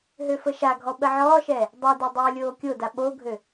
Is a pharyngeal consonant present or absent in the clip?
present